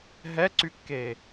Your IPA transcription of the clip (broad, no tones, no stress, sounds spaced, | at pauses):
ɦ ɛ ǀ y kː eː